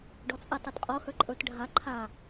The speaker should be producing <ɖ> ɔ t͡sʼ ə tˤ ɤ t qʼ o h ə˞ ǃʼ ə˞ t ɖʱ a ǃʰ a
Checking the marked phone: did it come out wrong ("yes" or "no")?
no